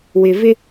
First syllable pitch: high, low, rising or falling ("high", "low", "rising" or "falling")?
low